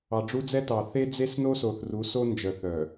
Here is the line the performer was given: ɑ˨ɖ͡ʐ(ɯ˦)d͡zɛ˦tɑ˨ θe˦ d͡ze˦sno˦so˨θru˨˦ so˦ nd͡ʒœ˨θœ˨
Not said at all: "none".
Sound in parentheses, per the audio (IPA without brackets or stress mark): u˦